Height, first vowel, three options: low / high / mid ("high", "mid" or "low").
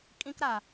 high